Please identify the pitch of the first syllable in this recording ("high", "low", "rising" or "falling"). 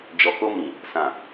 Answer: low